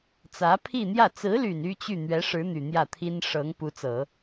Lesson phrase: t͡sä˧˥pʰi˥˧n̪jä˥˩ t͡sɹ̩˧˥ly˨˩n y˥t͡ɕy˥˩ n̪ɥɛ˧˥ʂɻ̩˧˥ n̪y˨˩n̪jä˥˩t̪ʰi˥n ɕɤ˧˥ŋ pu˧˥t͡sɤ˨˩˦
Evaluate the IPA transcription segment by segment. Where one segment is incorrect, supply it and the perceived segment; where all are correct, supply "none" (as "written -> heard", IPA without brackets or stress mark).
ɕ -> ʂ